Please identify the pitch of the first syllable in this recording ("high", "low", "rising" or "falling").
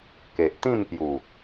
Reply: low